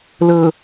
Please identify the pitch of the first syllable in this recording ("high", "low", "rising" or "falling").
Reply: low